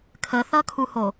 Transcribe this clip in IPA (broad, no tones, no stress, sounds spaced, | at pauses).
kʰ ə θ ʌ kʰ u h o